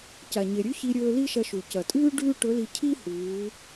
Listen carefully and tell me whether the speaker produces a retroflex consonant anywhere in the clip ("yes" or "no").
yes